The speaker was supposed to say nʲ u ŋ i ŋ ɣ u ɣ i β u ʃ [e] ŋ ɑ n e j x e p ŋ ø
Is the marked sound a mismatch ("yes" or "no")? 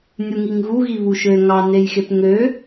yes